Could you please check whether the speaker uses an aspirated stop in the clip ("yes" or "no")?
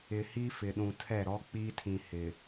yes